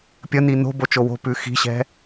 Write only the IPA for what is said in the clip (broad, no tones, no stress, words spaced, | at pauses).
pʲəni no̤bot͡ʃo wo̤pʉ xi̤ɕɛ̤